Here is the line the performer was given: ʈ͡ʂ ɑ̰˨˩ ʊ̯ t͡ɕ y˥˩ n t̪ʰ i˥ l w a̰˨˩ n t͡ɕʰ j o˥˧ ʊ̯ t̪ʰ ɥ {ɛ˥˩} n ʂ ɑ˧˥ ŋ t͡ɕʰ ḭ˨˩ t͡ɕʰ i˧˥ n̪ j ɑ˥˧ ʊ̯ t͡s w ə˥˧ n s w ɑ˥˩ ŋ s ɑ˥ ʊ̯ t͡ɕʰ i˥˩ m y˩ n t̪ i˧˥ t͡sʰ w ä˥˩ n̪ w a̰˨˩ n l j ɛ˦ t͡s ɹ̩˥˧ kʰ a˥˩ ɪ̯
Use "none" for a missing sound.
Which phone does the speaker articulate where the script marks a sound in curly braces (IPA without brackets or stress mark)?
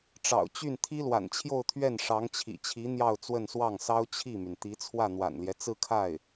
ɛ˥˩